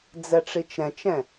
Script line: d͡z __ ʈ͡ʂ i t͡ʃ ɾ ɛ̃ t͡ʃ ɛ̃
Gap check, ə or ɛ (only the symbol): ɛ